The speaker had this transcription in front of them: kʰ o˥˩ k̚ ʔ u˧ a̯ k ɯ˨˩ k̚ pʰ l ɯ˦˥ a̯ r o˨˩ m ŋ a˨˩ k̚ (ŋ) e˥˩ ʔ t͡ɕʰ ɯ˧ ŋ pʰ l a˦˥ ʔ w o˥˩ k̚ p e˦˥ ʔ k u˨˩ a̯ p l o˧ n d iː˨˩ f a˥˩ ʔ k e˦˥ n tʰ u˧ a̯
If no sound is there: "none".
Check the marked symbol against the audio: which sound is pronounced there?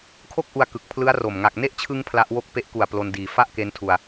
n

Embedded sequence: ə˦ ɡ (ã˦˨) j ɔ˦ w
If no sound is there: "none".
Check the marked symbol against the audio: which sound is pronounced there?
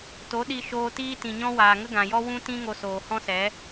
ã˨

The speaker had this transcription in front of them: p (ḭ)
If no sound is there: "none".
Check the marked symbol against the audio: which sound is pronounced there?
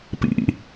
ḭ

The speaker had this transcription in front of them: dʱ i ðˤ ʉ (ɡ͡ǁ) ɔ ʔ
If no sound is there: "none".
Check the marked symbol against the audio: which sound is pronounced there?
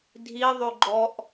ɡ͡ǃ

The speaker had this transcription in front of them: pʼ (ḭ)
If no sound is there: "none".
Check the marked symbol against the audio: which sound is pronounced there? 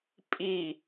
i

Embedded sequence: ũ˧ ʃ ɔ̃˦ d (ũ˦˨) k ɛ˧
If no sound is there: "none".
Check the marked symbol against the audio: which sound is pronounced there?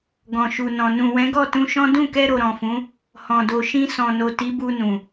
ũ˦˨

